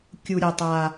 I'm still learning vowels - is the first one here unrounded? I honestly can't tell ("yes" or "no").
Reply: no